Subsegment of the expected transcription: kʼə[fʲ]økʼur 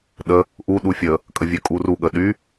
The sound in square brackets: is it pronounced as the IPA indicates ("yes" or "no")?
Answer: no